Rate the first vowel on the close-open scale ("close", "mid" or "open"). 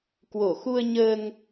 mid